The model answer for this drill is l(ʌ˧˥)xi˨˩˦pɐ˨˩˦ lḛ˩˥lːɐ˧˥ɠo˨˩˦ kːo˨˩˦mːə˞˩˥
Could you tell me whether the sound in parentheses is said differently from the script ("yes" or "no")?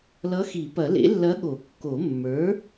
no